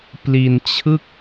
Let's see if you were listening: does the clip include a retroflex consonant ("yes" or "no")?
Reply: no